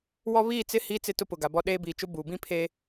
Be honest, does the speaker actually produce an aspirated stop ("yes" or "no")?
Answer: yes